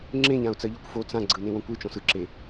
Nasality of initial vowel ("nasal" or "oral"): nasal